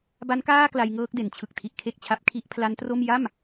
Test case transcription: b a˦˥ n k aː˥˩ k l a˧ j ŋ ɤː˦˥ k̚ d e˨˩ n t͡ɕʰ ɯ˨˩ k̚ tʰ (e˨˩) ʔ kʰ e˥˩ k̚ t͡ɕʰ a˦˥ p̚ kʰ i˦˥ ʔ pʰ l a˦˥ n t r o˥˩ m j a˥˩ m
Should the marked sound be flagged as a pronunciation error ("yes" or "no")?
yes